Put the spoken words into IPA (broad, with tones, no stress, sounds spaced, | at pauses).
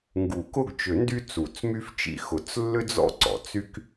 ŋ ɡ u˨˩˦ k ʊ˦˨ ɡ t͡ʃ ʏ˨˩˦ n d y˥ t͡s u˨˩˦ t͡s m y˥ f t͡ʃ ḭ˦˨ x ʊ˨˩˦ t͡s lː ʏ˥ d͡z ɔ̰˥ ǀ ɔ̰˨˩˦ t͡s y˥ k